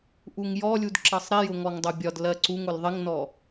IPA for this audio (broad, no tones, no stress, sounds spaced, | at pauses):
ʔ u ŋ j ɔ lʲ u d ǁ ʌ sˤ ɾ i j ʊ ŋ ɔ ŋ dˤ ʊ bʲ ɒ d l ɜ ǀ u ŋ ʊ l ðˤ ɪ ŋ n ɔ